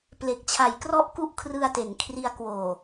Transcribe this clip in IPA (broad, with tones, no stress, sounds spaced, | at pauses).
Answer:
p l e˨˩ k̚ t͡ɕʰ a˨˩ j k r ɔ˥˩ ʔ k u˦˥ ʔ kʰ r ɯ˧ a̯ t e˩˦ n kʰ r i˧ a̯ k w oː˨˩